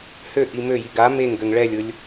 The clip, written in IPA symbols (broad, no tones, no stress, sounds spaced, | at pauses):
h ø ʔ i m ø j i ɡ a m e ŋ ɡ ø ŋ ɭ ɛ lʲ ʊ lʲ